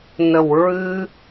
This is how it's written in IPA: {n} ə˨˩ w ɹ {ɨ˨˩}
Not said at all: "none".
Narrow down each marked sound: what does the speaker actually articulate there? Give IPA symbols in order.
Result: n, ɨ˧

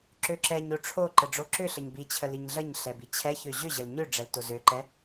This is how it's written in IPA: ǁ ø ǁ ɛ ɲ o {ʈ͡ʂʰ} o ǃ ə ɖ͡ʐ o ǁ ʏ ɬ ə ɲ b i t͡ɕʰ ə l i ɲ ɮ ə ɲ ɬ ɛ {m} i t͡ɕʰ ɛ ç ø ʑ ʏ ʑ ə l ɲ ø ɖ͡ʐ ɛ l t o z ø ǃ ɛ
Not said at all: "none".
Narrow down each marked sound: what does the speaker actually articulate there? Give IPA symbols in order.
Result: ʈ͡ʂʰ, b

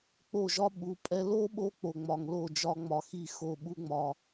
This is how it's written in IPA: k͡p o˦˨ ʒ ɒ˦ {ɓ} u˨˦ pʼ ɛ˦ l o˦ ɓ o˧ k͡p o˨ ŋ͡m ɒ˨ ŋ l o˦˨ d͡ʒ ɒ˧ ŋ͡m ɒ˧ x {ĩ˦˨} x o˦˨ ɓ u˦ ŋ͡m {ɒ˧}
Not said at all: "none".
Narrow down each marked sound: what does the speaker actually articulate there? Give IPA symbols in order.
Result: ɓ, i˦˨, ɒ˧

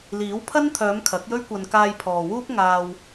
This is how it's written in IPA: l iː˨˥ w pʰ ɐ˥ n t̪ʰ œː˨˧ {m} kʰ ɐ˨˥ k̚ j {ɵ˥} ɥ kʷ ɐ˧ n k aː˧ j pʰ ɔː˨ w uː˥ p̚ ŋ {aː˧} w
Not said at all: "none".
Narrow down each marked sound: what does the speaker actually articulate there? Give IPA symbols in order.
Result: m, ɵ˥, aː˧

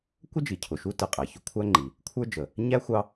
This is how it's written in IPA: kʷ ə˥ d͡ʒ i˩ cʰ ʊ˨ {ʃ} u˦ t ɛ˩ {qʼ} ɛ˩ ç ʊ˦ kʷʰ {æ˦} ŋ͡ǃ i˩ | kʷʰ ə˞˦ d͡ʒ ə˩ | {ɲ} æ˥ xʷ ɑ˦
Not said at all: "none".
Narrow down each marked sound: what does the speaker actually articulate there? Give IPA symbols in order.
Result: ʃ, qʼ, æ˦, ɲ

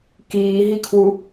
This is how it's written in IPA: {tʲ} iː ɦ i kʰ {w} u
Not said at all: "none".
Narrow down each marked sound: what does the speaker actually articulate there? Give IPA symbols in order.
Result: k, w

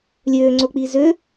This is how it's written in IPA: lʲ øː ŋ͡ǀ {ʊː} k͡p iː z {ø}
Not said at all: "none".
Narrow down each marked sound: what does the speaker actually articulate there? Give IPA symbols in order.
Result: ʊː, ø

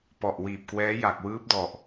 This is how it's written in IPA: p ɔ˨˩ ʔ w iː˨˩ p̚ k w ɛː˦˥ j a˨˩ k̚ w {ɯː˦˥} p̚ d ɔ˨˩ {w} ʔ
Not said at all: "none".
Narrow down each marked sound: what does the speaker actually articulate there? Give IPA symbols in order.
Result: ɯː˦˥, none

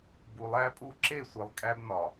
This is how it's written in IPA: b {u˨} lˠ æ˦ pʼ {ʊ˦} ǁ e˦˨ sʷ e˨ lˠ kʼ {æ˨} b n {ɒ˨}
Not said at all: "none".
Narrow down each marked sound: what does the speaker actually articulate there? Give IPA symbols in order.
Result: u˨, u˦, æ˦, ɒ˨

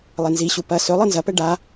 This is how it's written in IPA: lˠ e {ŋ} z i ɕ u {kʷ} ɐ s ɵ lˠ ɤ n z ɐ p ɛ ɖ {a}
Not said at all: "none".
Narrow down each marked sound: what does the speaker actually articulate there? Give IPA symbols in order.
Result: n, p, a

